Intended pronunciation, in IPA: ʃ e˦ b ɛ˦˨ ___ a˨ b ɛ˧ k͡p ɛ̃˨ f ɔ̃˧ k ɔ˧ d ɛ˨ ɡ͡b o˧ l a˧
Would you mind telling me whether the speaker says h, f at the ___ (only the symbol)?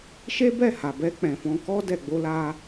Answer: h